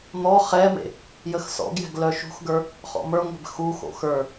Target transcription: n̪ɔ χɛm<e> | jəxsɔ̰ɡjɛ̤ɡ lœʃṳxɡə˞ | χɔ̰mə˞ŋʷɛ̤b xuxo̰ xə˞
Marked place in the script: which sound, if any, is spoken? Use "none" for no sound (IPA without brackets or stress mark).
ḛ